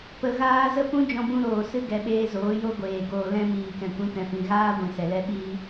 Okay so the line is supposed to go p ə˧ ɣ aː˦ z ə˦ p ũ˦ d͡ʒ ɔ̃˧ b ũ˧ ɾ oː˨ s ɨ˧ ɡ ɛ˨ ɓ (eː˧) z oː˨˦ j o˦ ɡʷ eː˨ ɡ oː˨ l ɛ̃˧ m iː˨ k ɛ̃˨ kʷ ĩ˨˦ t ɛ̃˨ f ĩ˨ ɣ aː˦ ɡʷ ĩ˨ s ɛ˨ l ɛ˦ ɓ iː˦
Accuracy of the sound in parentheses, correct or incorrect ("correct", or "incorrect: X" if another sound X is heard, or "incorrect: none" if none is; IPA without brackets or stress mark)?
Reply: correct